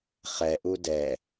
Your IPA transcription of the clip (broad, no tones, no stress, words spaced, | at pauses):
χɛʔu dɛ